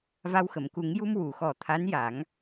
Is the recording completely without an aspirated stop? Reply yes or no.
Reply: no